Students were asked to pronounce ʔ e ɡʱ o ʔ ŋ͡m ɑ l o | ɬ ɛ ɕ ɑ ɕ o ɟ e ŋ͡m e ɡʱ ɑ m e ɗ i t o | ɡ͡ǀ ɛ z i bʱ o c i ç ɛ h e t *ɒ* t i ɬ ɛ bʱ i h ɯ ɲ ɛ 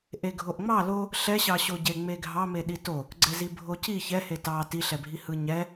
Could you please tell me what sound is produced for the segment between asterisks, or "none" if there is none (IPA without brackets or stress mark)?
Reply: ɑ